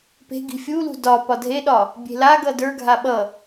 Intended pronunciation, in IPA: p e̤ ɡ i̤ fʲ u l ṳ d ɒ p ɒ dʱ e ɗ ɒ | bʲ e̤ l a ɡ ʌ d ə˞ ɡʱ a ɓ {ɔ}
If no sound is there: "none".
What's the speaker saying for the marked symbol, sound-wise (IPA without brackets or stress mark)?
ʌ